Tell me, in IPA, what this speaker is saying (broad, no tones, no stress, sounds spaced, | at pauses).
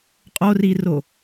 qʼ o r i r o